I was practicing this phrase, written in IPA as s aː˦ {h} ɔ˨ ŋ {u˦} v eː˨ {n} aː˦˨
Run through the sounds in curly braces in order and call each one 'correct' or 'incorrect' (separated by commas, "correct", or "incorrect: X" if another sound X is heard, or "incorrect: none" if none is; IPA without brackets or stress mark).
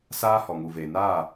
correct, incorrect: u˨, correct